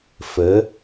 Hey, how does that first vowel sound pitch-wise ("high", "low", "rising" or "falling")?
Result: rising